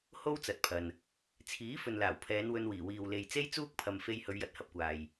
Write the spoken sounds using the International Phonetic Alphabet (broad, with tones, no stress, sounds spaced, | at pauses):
h o˥ w t͡s ɐ˨˥ t̚ pʰ ɐ˨ n | t͡sʰ iː˨˥ f ɵ˨ n l aː˨˩ w pʰ ɛː˨˧ n w ɵ˧ n w iː˨˩ w iː˨ w l e˨ j t͡s e˥ j t͡s uː˥ k̚ pʰ ɐ˨ m f e˧ j h ɵ˨˧ ɥ j ɐ˧ t̚ h ɐ˥ p̚ kʷ aː˨ j